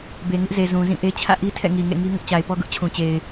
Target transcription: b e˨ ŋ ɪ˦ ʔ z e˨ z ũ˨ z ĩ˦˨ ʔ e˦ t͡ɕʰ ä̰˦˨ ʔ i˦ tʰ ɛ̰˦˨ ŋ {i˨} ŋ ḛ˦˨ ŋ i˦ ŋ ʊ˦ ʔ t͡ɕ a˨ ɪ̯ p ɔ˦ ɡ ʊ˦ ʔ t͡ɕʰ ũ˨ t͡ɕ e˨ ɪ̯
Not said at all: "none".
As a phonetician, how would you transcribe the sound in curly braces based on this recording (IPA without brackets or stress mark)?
i˨